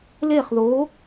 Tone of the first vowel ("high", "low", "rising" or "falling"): falling